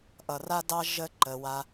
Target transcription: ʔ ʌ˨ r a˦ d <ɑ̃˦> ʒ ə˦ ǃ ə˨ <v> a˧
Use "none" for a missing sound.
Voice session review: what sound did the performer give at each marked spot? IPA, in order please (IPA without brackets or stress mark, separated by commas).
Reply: ɑ˦, w